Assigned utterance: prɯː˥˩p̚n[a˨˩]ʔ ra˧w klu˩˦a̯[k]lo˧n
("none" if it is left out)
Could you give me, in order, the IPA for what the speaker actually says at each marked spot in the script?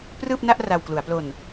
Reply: a˥˩, p

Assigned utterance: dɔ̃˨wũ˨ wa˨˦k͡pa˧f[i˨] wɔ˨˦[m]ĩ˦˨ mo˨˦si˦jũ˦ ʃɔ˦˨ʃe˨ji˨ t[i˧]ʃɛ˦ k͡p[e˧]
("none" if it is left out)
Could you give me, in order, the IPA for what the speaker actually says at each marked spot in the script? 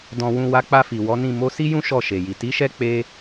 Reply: i˨, n, i˨˦, e˦

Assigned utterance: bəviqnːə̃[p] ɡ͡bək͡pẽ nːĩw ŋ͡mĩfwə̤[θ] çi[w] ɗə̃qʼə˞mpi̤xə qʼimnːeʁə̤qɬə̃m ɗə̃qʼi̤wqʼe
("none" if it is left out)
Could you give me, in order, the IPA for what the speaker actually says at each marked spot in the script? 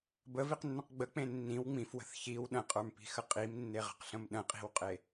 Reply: q, θ, w

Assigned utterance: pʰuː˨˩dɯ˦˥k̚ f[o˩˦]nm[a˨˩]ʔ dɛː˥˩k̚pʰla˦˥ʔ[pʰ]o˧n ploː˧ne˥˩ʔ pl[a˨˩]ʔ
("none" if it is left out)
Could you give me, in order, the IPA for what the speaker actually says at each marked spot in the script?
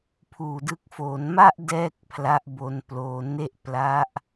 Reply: o˩˦, a˥˩, b, a˦˥

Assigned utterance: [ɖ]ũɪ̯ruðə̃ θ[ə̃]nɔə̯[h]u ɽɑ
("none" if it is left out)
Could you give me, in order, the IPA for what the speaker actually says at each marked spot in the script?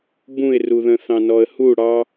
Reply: b, ɑ̃, h

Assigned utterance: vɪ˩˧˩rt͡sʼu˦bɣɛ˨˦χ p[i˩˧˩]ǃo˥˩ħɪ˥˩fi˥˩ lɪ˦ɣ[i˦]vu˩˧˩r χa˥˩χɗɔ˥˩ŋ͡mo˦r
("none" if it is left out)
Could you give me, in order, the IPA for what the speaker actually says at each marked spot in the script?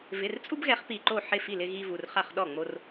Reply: i˧˩, i˦

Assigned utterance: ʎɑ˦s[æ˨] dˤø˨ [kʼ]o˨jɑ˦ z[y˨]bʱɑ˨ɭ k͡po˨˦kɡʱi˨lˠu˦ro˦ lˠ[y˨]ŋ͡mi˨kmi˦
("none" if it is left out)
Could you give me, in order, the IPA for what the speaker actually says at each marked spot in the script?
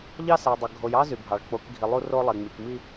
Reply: æ˨, ɡʱ, y˨, e˨

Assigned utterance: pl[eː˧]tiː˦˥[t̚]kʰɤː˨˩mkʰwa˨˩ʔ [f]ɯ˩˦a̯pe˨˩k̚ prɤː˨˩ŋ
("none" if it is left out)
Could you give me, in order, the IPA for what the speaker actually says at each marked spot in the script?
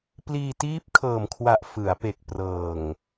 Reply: iː˧, p̚, f

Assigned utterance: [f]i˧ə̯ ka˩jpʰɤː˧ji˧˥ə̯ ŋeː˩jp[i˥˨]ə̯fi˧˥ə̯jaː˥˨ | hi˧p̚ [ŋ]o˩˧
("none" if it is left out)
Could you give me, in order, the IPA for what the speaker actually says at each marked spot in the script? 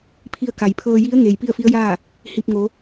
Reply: pʰ, i˥˨, ŋ

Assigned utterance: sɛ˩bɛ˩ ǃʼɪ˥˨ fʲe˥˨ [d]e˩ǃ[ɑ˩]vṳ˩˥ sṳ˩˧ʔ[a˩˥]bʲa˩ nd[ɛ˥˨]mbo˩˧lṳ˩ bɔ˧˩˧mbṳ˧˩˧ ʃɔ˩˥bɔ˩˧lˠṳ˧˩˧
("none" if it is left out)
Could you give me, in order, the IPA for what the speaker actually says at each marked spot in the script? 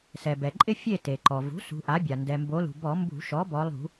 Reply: t, ɔ˩, a˩˥, ɛ˩

